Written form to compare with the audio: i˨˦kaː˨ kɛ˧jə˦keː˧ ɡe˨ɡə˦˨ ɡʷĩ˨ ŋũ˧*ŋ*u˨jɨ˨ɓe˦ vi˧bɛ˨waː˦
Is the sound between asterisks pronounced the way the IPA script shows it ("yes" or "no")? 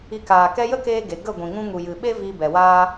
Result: yes